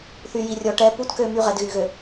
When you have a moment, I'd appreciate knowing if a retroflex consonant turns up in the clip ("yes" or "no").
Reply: yes